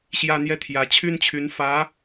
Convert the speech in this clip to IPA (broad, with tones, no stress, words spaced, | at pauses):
ɕjä˥ n̪jɛ˥˩t̪ʰjä˧˥t͡ɕʰy˥nt͡ɕʰy˧˥n fä˧˥